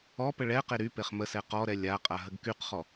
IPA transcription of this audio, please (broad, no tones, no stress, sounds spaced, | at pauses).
ɔ p ə ɭ ɛ q e ɾ y p e χ m ə s ɛ q ɔ ɾ ɛ lʲ a qʼ a ɦ ə ɡ k y q χ ɔ